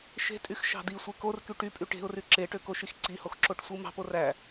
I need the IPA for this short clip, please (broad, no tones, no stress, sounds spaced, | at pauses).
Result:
ʃ e̤ tʼ y x ʃ ɑ̤ d i sʷ e k o r k y ʈ y pʼ y ʈ e̤ ʊ̯ r y ǁ e ʈ ø k o ʃ i x ǀ i h o x ǁ o ʈ sʷ ɯ m ɑ̤ p o r æ